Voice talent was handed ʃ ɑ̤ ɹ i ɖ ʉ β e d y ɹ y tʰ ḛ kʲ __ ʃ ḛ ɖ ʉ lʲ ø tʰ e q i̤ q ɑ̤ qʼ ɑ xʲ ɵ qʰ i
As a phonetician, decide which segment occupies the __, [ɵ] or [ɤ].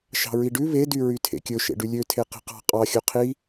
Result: ɵ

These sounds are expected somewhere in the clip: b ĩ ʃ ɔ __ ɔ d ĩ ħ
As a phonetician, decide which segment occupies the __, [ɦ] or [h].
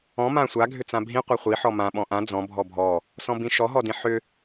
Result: ɦ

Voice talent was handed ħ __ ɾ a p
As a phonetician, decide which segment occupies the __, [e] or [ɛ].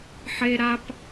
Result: e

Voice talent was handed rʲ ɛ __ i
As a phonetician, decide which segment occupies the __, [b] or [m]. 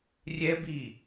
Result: b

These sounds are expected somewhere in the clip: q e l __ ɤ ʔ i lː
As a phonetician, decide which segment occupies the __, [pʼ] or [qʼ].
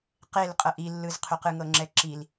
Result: qʼ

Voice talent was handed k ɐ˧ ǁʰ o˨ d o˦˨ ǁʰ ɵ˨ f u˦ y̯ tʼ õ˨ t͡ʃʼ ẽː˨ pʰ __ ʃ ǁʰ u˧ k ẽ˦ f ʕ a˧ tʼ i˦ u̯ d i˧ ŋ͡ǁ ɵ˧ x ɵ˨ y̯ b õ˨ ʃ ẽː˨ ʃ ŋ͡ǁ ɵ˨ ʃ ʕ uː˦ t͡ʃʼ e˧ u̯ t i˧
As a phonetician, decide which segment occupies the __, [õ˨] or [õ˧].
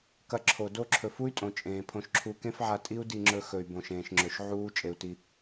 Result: õ˧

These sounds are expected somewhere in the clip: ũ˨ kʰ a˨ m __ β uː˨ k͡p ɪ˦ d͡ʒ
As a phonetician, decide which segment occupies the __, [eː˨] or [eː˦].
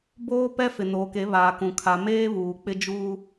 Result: eː˦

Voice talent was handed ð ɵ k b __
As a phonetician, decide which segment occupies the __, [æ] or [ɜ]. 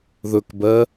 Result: ɜ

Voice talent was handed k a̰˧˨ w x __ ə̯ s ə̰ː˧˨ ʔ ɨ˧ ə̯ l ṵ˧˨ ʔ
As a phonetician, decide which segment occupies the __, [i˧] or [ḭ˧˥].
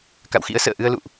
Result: ḭ˧˥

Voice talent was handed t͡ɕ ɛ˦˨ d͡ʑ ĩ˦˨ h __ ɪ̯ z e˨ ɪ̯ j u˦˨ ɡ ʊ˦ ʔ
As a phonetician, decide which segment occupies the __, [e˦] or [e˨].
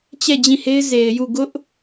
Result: e˦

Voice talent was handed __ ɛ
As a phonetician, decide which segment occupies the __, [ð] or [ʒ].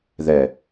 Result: ð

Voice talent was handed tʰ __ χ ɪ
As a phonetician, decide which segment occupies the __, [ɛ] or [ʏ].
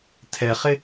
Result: ɛ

